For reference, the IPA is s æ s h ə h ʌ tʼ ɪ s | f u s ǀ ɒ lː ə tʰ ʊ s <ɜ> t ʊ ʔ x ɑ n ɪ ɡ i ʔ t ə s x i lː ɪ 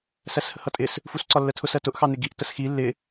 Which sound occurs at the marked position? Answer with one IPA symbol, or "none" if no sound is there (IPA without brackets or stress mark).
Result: ɜ